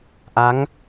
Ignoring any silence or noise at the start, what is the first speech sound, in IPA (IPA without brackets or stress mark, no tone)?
ʔ